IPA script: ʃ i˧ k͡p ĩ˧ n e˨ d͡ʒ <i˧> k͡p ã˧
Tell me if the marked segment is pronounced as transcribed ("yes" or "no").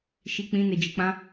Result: no